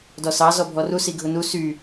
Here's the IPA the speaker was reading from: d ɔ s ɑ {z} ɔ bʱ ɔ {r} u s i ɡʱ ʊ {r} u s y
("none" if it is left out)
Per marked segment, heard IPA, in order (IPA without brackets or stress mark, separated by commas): z, r, n